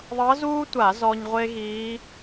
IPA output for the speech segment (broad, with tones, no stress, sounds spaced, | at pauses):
ðˤ ɤ˧˥ z uː˥ tʷ a˧˩˧ z ɔ˧ ɲ ʁʷ e˥ ɣ iː˧˥